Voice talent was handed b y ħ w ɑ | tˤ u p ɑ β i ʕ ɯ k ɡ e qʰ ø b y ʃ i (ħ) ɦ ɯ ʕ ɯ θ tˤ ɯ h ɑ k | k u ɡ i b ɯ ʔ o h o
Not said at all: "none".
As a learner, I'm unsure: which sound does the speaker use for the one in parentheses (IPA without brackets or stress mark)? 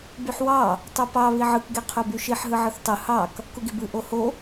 ħ